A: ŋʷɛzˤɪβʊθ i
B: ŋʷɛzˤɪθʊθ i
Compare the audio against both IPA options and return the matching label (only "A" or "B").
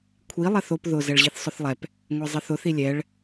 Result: B